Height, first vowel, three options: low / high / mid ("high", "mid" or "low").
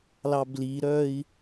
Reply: low